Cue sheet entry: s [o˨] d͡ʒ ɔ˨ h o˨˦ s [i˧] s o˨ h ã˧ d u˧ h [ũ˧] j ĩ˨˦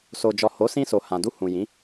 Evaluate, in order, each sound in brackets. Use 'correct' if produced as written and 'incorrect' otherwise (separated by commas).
correct, incorrect, incorrect